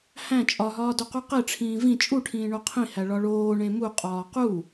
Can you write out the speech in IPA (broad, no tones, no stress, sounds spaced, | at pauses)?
h æ̃ t͡ʃʼ ɒ ɦ ɒː d o q u q e ʈ͡ʂʰ ĩː v ĩ t͡ʃʼ u ʈʰ ĩː ɳ o qʰ ĩ h æ ɭ ɒ ɭ oː ɳ ẽ m u qʼ ɒː q u